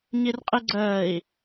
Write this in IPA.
ɲ i r qʼ i ɡ͡ǀ əː i̯

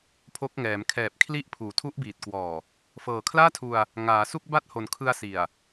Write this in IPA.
pʰ o˦˥ k̚ ŋ ɛː˩˦ m kʰ ɛː˨˩ p̚ kʰ l i˦˥ ʔ pʰ uː˨˩ tʰ u˦˥ ʔ b iː˨˩ t̚ k w ɔː˨˩ | f ɤː˨˩ kʰ l aː˥˩ tʰ u˧ a̯ | ŋ aː˩˦ s u˥˩ k̚ b a˥˩ t̚ h o˨˩ n kʰ ɯ˧ a̯ s i˨˩ a̯

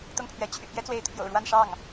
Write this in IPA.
t̪ ʊ˥˩ ŋ pʰ ɥ ɛ˧˥ t͡ɕʰ y̰˨˩ p j ɛ˥ t͡s w e˧˥ ɪ̯ t̪ʰ j o̰˨˩ ʊ̯ ɻ w a˥˧ n ʂ ɑ˥˩ ŋ

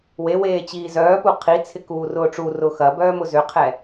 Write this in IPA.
w e w eː t͡ɕ iː z œː p u qʰ i t͡sʰ ɪ k uː r ʊː ʈ͡ʂ u r ʊː x ɐ b œː m ʊ z ʏ qʰ ɛ

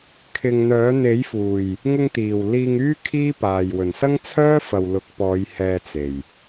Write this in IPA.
kʰ ɪ˨ ŋ n̪ œː˨˥ n̪ e˨˥ j f uː˨˩ j | ŋ ʊ˧ ŋ t̪ iː˨˩ w l iː˧ ŋ yː˥ kʰ iː˥ p aː˨ j w ɵ˨˩ n s ɐ˥ ŋ t͡sʰ œː˥ f ɐ˨ w l ʊ˨˥ k̚ p ɔː˨˧ j h ɛː˧ t͡s e˨˩ j

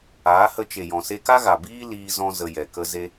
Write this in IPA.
aː˨˦ h ə˧ t͡ʃ e˨ j ɔ̃˨ s e˧ k a˦ ɣ a˨ b iː˦ l iː˧ z ɔ̃˧ z ə˧ j ɛ˨ k ə˦ z e˧

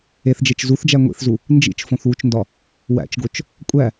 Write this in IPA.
e θ d͡ʒ e t͡ʃ z u θ d͡ʒ æ ŋʷ ḭ θ z u | n d͡ʒ ḭ t͡ʃ f õ θ w u t͡ʃ n d ɒ | w æ̰ t͡ʃ ɡ o t͡ʃ | kʷʼ æ

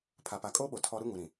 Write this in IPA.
pʰ a˨ p a˨ kʼ oː˦ ɓ o˨ tʰ ɔ˦ ɾ u˦ ŋ u˨ ɾ ĩ˨

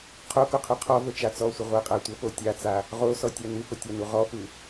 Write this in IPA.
qʰ o k o qʰ ʉ qʰ ɔ v ə t͡ʃ a t͡s ɔ sʷ ə ʁʷ ɜ qʼ a tʷ ə p o tʲ a t͡s a | ʁ o s ɔ tʲ a n ʉ p ə tʲ a n u ʁ ɔ p ʉ

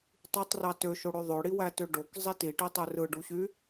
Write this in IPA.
tˤ y tˤ r ɑ t ø ʃ o ɽ ø ðˤ ø ɽ i w æ t ø ɖ o k zˤ i t i ʈ i tˤ ø r ɯ ɖ u ɕ y

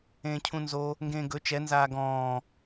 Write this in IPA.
ẽː cʰ ũ n z o | ŋ ɡ ẽː ɡ ɵ t͡ʃ ɛ n z aː ɡ ɔ̃ː

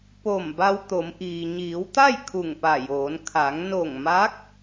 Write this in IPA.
p o˧˩ m b a˧ w t̪ o˩˧ m ʔ iː˩ ɲ iː˩˧ w t̪ a˥˨ j kʰ u˧˩ ŋ p a˧˩ j oː˩˧ n kʰ a˩˧ ŋ n o˧˩ ŋ m a˧˥ k̚

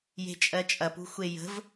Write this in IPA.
j e̤ t͡ʃʼ ɜ t͡ʃʼ ɐ p ṳ xʷ e j ə̤ v

